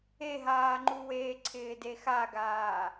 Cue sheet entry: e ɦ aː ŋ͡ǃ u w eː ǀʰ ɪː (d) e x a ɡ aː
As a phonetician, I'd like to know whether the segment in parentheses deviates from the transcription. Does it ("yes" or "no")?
no